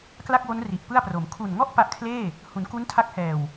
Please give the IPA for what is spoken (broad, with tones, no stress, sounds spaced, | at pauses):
k l a˥˩ k̚ w o˦˥ n r i˨˩ ʔ p ɯ˥˩ a̯ p r o˩˦ m kʰ u˨˩ n ŋ ɔ˥˩ ʔ p a˦˥ ʔ kʰ l eː˥˩ | h u˩˦ n k u˦˥ n tʰ a˦˥ k̚ h ɛː˨˩ w